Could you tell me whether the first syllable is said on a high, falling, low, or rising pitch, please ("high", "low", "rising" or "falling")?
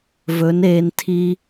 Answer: rising